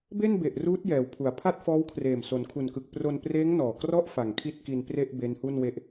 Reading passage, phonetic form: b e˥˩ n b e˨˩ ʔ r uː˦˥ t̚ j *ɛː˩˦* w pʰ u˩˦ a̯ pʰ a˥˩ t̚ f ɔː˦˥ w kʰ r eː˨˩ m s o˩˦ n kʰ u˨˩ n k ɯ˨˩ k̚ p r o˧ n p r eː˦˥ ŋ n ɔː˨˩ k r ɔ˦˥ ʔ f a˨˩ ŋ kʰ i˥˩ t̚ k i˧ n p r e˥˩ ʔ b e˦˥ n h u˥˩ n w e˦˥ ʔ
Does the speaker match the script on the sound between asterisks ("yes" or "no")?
yes